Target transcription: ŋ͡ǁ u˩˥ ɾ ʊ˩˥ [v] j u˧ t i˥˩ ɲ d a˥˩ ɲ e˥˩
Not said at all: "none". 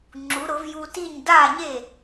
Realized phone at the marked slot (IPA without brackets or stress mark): v